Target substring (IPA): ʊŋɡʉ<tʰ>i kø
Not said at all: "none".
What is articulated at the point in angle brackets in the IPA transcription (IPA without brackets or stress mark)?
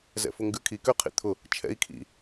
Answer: kʰ